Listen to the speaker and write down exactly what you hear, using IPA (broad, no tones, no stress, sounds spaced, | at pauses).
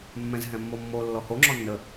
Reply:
mː ɛ̃ z ɦ ɛ̃ mː o mː o lː ɔ h o ŋ͡ǁ ɔ nː ə